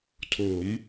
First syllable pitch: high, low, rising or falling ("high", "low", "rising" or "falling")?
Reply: rising